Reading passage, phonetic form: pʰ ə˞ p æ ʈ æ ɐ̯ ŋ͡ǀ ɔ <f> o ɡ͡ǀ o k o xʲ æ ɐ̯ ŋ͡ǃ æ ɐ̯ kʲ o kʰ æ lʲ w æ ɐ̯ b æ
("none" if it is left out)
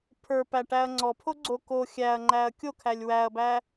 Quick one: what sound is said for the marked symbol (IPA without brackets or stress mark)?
pʰ